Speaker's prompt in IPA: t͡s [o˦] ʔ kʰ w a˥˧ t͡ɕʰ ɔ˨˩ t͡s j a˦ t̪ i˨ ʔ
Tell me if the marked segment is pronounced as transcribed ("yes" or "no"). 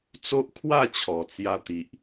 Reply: yes